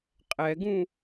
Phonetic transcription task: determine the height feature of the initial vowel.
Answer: mid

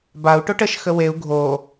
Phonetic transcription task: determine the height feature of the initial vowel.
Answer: low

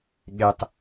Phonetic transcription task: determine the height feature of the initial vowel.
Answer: mid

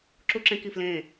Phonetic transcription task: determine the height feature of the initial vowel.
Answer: high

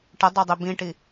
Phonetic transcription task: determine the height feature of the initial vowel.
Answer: mid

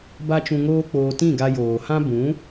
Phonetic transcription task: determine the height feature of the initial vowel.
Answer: low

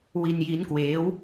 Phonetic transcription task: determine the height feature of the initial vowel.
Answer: high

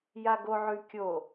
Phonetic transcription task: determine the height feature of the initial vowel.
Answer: low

